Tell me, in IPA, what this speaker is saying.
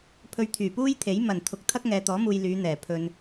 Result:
pʰɵ˧ɥt̪ʰyː˨˩puː˥jt̪ʰe˨˥j mɐ˨˩n t̪ʰʊ˨˥k̚t̪ʰɐ˥k̚ŋɛː˨t̪ɔː˨˥ muː˨j lyː˨˧n̪ɛː˨˩ pʰɵ˨n

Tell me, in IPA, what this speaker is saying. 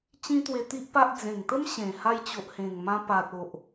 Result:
t͡ɕĩ˦t̪we˧t̪i˦ʔpa˦ʔ d͡zẽ˨˩ŋt̪ə˦m ɕẽ˨˩ ha˧jt͡ɕo˨ʔhẽ˨˩ŋmã˧ pa˨t̚o˨ʔ

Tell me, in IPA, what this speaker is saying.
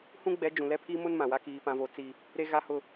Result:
hũ˦ɡ͡bɛ˨˦d͡ʒũ˨lɛ˦ pʰi˦mʊ˦n mã˨wa˦ kiː˨pã˨vo˨ t͡si˦ | ɾe˦ɣa˦hʊ˦

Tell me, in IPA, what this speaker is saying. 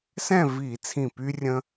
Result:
sɛ̃˥˨viː˧˩˧ t͡sʰĩ˧˩ py˦rʲə̃˦

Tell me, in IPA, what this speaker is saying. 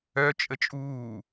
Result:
œt͡ʃʼə t͡ʃʼuː

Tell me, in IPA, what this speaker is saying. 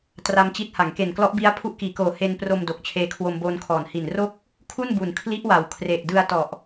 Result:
tra˧mt͡ɕi˦˥t̚ ha˩˦ŋke˨˩nklɔ˦˥ʔbi˦˥a̯ pʰu˦˥ʔkiː˩˦koː˨˩ he˧n pro˧m do˨˩k̚t͡ɕʰeː˧kʰwo˧m boː˧nkʰɔː˩˦n hi˨˩nro˥˩k̚ | kʰu˥˩nbu˨˩n kʰli˦˥ʔwa˩˦w kʰre˨˩ʔdɯ˧a̯ tɔ˨˩ʔ

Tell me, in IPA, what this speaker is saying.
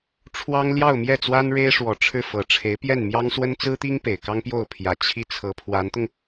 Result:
ʈ͡ʂʰwɑ˥ŋ ljɑ˥˧ʊ̯mjɛ˥˩t͡swa˥n ɻe˥ɪ̯ ʂwɔ˨˩ ʈ͡ʂʰɻ̩˥˩fɤ˨˩ʈ͡ʂʰe˧˥ɪ̯ pjɛ˥˩nmjɑ˥ŋswə˥n t͡sɹ̩˥t̪i˥ŋ pe˨˩ɪ̯kɑ˥ŋpjo˥˩ʊ̯ pʰjä˨˩ t͡ɕʰi˥˩ t͡sʰɤ˧˥pʰwa˧˥nt̪ʊ˧ŋ

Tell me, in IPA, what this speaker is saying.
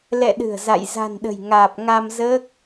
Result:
lɛ̰˧˨ɗɨ̤˨˩ə̯ za̰˧˨j za̤˨˩n ɗə̤˨˩jŋaː˨˩p̚ ŋa˧mzəː˦˥k̚

